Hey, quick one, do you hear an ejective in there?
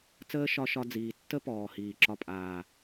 yes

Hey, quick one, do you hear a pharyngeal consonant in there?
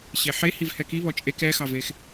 yes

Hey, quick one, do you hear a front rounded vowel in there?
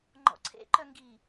yes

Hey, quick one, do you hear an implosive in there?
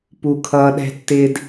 yes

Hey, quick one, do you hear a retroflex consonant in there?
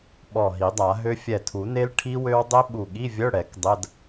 yes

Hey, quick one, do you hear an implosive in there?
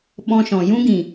yes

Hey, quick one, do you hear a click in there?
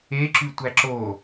yes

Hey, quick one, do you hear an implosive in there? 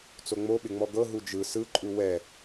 yes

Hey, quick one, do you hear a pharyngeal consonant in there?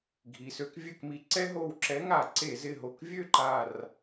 no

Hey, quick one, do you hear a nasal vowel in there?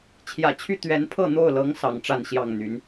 no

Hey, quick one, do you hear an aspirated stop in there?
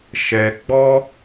no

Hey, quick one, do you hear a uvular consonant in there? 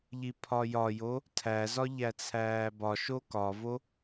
no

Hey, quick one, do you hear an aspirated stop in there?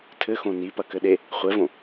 yes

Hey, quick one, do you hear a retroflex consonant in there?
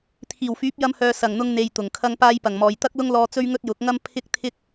no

